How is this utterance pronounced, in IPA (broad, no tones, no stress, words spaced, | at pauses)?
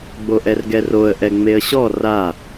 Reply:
ɡ͡boʔɛrɡɛroə̯ ʔɛŋ͡meə̯ɕɔ ra